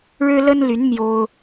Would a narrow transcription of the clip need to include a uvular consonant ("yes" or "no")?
no